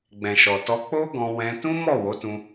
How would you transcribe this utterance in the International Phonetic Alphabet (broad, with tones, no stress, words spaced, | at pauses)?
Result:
ɡ͡bɛ̃˨ʃɔ˨ tɔ˧k͡po˦ɡɔ̃˧ wɛ̃˧ tũ˦mɔ˦˨wo˨˦tũ˧